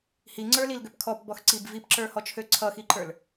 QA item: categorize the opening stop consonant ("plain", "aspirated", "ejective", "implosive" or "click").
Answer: click